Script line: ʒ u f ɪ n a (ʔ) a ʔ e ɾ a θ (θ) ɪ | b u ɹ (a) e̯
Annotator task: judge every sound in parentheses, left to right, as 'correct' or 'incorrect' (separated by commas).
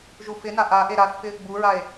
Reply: correct, incorrect, correct